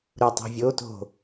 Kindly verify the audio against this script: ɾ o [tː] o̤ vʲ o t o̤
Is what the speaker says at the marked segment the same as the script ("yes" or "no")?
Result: no